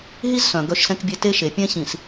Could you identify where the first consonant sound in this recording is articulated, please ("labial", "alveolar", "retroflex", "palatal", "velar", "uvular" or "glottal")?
glottal